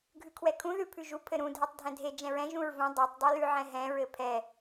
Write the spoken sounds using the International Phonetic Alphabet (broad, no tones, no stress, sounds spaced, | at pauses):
ɡʱ ʉ kʰ w ɛ kʰ ũ ð ʉ pʰ ʉ ʒ u pʰ ɘ ɾ ũ dʱ ɛ tˤ dʱ ɛ̃ dʱ e d͡ʒ ɛ̃ ɹ ɛ̃ ʒ ũ ɹ v ũ dˤ e tˤ dˤ u l ʉ ʕ ɛ̃ ɦ ɛ̃ ɹ ɘ pʰ ɛ